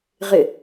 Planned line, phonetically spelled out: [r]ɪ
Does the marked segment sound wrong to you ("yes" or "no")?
yes